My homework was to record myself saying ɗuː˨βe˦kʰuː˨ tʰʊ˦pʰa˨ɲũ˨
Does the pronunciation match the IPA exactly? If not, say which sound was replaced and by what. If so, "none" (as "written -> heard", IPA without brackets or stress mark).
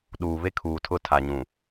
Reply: pʰ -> tʰ